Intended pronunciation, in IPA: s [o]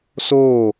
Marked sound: incorrect: oː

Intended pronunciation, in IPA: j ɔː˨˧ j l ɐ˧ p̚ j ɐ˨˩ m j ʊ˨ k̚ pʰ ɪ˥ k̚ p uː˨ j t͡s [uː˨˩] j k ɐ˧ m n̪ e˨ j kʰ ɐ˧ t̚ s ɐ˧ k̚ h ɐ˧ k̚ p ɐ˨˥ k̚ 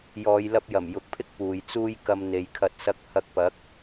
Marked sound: incorrect: uː˥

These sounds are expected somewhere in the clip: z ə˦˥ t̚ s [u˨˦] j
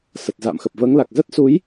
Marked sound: correct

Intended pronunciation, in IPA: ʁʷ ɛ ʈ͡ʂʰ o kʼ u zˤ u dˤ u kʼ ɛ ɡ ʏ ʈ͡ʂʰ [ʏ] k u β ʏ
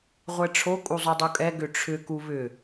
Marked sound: correct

